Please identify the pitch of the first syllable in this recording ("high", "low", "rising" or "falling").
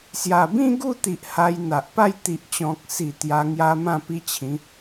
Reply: low